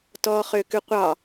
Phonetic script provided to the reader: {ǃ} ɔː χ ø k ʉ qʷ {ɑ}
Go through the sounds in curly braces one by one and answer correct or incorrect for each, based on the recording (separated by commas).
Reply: incorrect, correct